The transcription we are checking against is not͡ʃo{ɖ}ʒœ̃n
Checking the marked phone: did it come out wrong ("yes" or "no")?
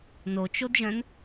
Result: yes